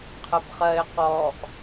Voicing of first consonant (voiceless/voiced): voiceless